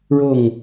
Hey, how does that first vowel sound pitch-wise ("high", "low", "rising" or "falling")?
falling